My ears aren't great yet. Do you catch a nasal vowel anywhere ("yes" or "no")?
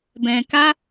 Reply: yes